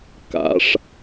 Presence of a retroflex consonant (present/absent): present